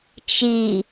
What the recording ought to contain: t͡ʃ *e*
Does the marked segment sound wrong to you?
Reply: yes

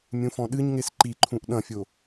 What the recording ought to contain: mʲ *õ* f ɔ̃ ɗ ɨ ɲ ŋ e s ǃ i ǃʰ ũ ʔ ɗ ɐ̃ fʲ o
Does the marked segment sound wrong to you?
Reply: yes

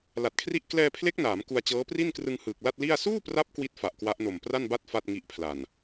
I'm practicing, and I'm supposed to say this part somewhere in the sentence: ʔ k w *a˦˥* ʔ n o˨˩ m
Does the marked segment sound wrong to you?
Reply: no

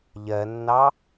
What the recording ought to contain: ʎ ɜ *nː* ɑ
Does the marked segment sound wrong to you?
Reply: no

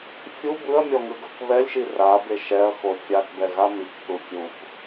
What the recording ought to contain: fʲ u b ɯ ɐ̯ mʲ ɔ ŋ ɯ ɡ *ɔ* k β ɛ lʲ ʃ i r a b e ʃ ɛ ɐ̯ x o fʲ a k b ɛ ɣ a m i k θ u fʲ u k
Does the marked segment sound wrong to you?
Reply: yes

